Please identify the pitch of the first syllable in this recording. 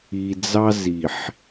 low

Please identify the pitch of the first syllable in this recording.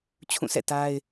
falling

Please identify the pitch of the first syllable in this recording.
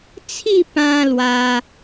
falling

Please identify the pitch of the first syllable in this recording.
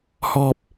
falling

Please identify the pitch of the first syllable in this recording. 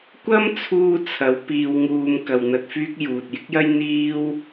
high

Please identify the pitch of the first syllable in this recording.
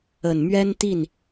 low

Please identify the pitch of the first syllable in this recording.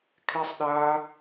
high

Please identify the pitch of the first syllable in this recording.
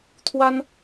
high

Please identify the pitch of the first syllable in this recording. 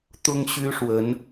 high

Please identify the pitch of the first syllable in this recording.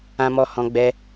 high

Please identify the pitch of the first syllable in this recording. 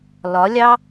rising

